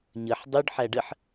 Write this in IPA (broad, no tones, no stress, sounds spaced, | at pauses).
ɲ ə ħ dˤ u ɖ ħ æ ɖ ə ħ